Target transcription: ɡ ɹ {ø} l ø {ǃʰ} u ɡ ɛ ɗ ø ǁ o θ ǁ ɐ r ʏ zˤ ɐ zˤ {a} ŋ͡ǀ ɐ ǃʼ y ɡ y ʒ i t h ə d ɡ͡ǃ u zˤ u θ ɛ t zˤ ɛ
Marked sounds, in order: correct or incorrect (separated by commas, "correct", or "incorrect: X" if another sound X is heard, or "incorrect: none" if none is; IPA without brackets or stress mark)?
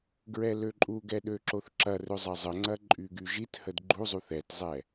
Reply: incorrect: ɛ, incorrect: ǃʼ, incorrect: ə